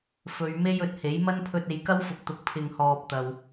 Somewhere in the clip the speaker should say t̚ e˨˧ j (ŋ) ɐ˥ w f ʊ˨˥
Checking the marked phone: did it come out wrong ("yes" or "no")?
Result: yes